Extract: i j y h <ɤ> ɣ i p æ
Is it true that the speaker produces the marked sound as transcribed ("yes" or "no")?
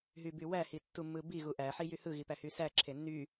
no